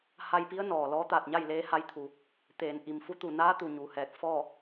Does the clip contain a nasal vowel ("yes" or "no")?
no